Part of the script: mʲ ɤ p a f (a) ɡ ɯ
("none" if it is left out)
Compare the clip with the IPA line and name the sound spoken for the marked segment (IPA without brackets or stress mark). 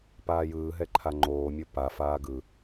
aː